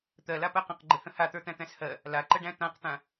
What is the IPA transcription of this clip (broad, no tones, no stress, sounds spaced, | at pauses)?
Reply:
t̪ ɜ l a p ɜ q ə̃ q ɡ͡ǃ ɘ h ə̃ h a t̪ ə˞ t̪ æ̃ t̪ æ̃ s h ɜ | l a ǃ ə ɖ æ̃ t̪ ã q t̪ ã